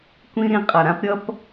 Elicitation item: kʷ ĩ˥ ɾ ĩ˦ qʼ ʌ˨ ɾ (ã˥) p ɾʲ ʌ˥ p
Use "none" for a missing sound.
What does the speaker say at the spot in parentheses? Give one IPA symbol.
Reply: ã˥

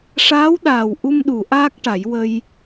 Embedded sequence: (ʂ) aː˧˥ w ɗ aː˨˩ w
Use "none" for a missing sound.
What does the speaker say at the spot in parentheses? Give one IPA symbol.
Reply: ʂ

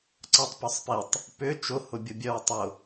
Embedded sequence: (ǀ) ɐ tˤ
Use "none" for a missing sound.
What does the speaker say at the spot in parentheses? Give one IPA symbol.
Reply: ǀ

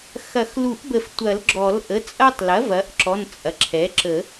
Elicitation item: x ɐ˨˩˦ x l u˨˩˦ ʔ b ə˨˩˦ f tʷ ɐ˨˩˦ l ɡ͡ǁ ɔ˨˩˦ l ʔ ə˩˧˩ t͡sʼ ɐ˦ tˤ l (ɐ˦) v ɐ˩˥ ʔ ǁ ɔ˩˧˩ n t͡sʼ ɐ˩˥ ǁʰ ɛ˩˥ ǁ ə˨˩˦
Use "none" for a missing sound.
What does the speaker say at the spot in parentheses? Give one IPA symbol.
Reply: ɐ˩˥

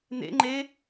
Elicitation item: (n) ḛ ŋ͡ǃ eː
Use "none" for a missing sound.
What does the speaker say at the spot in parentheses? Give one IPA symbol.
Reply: n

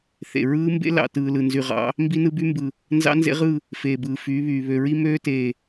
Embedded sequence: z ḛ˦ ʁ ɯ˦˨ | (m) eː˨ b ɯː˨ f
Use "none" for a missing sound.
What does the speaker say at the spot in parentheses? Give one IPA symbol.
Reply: f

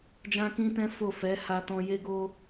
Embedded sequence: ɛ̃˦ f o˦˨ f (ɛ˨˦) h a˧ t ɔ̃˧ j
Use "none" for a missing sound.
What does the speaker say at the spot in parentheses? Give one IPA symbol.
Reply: ɛ˨˦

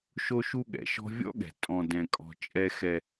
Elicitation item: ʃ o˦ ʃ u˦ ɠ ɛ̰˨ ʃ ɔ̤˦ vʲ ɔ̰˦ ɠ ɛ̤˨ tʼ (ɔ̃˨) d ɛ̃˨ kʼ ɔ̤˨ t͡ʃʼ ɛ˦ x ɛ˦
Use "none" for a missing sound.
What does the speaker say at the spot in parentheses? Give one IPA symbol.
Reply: ɔ̃˨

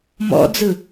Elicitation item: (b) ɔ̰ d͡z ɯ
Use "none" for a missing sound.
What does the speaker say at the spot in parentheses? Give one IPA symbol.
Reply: m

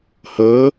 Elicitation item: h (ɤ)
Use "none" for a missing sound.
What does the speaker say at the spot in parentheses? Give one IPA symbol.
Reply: ɤ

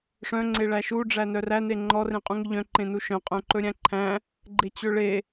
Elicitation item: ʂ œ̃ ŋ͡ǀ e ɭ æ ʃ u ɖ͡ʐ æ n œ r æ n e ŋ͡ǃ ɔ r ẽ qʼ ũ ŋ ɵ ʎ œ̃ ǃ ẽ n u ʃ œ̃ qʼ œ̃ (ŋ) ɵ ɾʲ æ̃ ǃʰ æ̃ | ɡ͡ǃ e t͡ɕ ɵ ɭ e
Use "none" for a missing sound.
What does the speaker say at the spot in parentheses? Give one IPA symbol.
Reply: ǃ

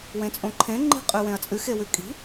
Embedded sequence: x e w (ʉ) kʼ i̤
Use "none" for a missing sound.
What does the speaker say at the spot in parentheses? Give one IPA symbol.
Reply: ʉ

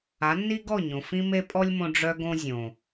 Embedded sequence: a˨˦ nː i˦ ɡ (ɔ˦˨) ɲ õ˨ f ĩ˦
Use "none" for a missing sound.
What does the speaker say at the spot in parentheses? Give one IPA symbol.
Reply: ɔ˦˨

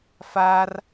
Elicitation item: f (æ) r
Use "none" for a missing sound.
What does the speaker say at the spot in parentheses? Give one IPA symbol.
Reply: a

